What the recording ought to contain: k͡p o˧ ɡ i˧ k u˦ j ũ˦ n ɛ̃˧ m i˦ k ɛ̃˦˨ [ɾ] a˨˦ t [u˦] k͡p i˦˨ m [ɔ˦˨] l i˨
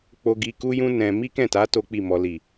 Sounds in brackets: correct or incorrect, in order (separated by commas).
incorrect, incorrect, incorrect